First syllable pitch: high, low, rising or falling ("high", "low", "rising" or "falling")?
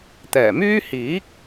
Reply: low